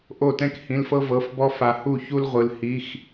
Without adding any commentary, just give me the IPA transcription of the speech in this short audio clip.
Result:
ʔ o˥˩ t ɛ̃˥ k h ĩ˧˥˧ l f ɤ˥ v ɤ˧˥˧ f b ɔ˥ f a˧ h u˥˩ ç u˥ l ʁʷ ɯ˧ l h i˧˥˧ x

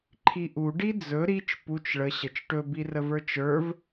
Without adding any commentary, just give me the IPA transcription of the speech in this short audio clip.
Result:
ǃʰ i ʔ u ɖ i d͡z ɵ ɾ i t͡ʃ p u t͡ʃ ɭ ə ɕ ə t͡ʃ ʈ ɵ b i r ə v ə˞ t͡ʃ ə˞ v

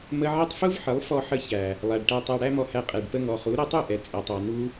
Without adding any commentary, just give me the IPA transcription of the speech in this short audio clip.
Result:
m ə˧ ʕ ɛ˦ tˤ f u˦ v ħ ə˨˦ lˠ f ɔ˧ ħ ə˧ ç æ˨ | lˠ æ˨ ɖ ʈ æ˧ tˤ æ˧ ɽ æ˦ m ɔ˧ h æ˧ qʼ ɛ˨ ɖ p ə˧ ŋ ɔ˨ χ u˨˦ ɾ ɛ˧ tˤ u˦˨ ʔ ɛ˨ t͡sʼ ɛ˨ tˤ ɑ˨ n u˧

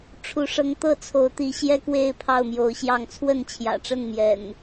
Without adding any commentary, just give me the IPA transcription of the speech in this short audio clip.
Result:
ʈ͡ʂʰ u˨˦ ʂ ɤ˨˦ ŋ t̪ ɤ˥˨ t͡sʰ o˨˦ ʊ̯ t̪ i˨˦ ɕ j ɛ˦ k w e˥˨ ɪ̯ pʰ ɑ˥˨ ʊ̯ m j o˨˦ ʊ̯ ɕ j ɑ˥˨ ŋ t͡sʰ w ə˥˨ n t͡ɕʰ j ä̰˨˩ ʈ͡ʂ ə˥˨ n m j ɛ̰˨˩ n

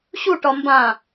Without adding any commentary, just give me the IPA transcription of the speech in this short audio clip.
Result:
ɕ u ʈ ɒ m b ã

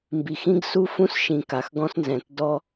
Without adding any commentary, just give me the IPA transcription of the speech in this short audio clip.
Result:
m b i˨ x ĩ˦ ɡ s u˦ f ũ˦ s ʃ ĩ˨ k a˨ x ɡ ɔ̃˦ s n z ɛ̃˨ t d ɔ˦

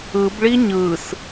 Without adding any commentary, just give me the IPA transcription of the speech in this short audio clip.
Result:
ɯ b ɭ i ɲ ɯ s

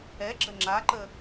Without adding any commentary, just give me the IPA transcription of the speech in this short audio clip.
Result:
ɛ ɡ͡ǁ ə ŋ͡ǁ a ǃ ə

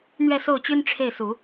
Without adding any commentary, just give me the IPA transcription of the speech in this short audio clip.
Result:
n̪ ɥ ɛ˥˧ s o˥˩ ʊ̯ t͡ɕ y˥ n ʈ͡ʂʰ e˥˩ ɪ̯ s u˨˩˦

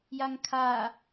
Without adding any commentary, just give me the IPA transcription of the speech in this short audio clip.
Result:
j a ŋ kʰ a

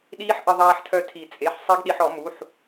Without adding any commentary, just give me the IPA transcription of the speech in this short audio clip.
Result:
ɗ iː˦˥ ħ ʔ ɪ˧ ðˤ aː˧ ħ tʰ œ˧ tʰ i˨˩˦ t͡sʼ e˩˧˩ ħ sˤ i˦˥ ɡ ɗ i˧ ħ ɔ˨˩˦ m u˩˧˩ ħ

